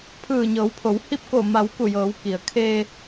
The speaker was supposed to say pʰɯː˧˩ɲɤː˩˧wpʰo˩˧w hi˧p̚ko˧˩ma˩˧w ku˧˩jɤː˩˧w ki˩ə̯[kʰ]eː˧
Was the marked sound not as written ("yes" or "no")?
no